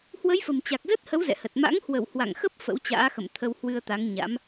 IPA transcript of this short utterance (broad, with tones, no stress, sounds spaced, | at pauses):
h w ə˨˦ j f ə̤˨˩ m t͡ɕ a˨˩ k̚ z ə˦˥ t̚ h ə˨˦ w z ɛ̰˧˨ h ə˨˩ t̚ m a̰˧˥ ŋ h w ə˧˩ w h w a̰˧˨ ŋ x ə˦˥ p̚ f ə̰˧˥ w t͡ɕ a̰ː˧˥ x ə̰˧˨ m t̪ʰ ə˧ w h w ɨ˧ ə̯ t̪ a˨˦ ŋ ɲ a̰˧˥ m